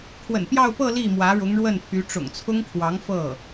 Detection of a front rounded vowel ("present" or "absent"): present